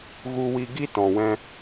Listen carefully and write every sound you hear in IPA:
ɣ u˧ w i˧ ɡ i˦ t ɔ̃˨ w ɛ̃˧

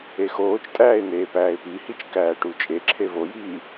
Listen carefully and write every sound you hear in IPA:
e x oː t͡ʃ tʼ æː ɪ̯ n̪ eː p æː ɪ̯ p i h i t͡ʃ k æː ʈ u t͡ʃʼ e ǁʰ e v o j iː

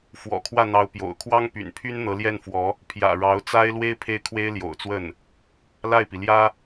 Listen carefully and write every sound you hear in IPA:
f w ɔ̰˨˩ kʰ w ä˥˩ n̪ ɑ˧˥ ʊ̯ p j o̰˨˩ ʊ̯ kʰ w ɑ˥ ŋ p y̰˨˩ n pʰ y˥ n n̪ ɤ˧˥ l j ɛ˥˩ n f w ɔ˧˥ | pʰ j ä̰˨˩ ɻ ɑ˧˥ ʊ̯ t͡s a˥ ɪ̯ l w e˥ ɪ̯ pʰ e˥˩ ɪ̯ kʰ w e˥ ɪ̯ l j o̰˨˩ ʊ̯ t͡s w ə˥˩ n | l a˥˩ ɪ̯ p i˩ l j ä˥

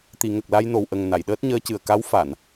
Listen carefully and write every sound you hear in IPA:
t̪ i˨˩˨ ŋ ə˨˩ k̚ l a˧ j n o˨˩ w ʔ ə˨˩ ŋ n a˨˩˨ j ɗ əː˦˥ t̚ ɲ əː˧˥ c ɨ˨˩ ə̯ k a˧˥ w f a˨˩˨ n

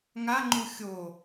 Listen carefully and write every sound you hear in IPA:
ŋ a ŋ͡ǃ u xʲ o

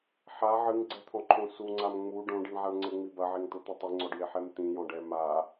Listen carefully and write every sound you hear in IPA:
ħ a ʕ ɨ ŋ ɡ͡ǀ ɛ t̪ʰ ɔ̃ ǃʰ õ s u ŋ͡ǀ a m ŋ͡m u ɖ õ ɖ i ɳ ʕ a ɳ ŋ͡ǀ ɘ ŋ͡m i b ɐ ʕ e ŋ t̪ o t̪ ɐ tˤ i ŋ͡ǀ ɔ ɖ j e ħ ɛ m t̪ ĩ j ɔ̃ ɖ ɛ m a

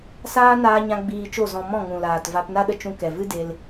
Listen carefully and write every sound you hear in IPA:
s aː˦ n aː˧ ɲ ã˧ ɡ͡b iː˧ t͡ʃ o˦˨ z ɔ̃˧ m ɔ̃˦˨ ŋ ũ˨ l aː˨ t v a˧ p n a˦ ɗ ə˧ t͡ʃ ũ˧ k ɛ˨ v ɨ˦ d e˧ l

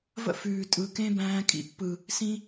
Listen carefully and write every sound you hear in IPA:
v ə̰˦ f ʉː˨ tʼ ɯ˨ k ẽ˦ b æ̃ː˧ kʼ ḭ˧ pː ɯ˨ | s ĩ˧

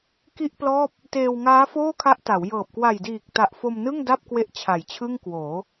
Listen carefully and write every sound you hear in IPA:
k i˥˩ ʔ p l ɔː˥˩ p̚ | t eː˧ w ŋ aː˦˥ f oː˥˩ kʰ a˦˥ ʔ t a˩˦ w j ɤː˨˩ p̚ k w a˨˩ j d iː˨˩ k̚ t a˨˩ ʔ f o˧ m n ɯ˥˩ ŋ d a˥˩ p̚ k w e˥˩ ʔ t͡ɕʰ a˨˩ j t͡ɕʰ ɯ˥˩ ŋ k w oː˩˦

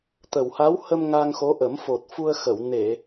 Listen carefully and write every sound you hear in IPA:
t̪ ə˨˩ w h a˧˥ w h ə˧ m ŋ a˧ ŋ x o˧˥ ʔ ə˨˩˦ m f o˨˩ t̚ f u˧ ə̯ x ə˨˩˨ w n e˨˩˨

